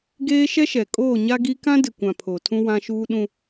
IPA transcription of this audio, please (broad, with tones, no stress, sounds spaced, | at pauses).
ɡ eː˦ ʃ ɛ˦ ʃ ɛ˨ kʼ oː˦˨ ɲ a˦ ɡ i˦ k ã˦ d ɪ˨ kʷ ã˨ pʰ o˨ tʰ ũ˦ w ã˦ ʃ uː˦ ɗ ũ˦